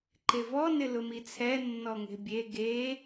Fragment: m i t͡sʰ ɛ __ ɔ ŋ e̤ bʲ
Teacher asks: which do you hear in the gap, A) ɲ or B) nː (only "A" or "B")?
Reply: B